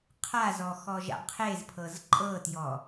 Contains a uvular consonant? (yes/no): yes